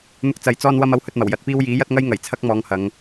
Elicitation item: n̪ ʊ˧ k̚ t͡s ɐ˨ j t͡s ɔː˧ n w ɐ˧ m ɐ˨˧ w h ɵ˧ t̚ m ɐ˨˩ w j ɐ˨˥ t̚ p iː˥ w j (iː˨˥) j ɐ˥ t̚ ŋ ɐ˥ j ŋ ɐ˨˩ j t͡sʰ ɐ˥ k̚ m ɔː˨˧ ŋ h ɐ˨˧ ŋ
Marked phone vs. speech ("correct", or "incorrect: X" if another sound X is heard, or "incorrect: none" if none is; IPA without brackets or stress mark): correct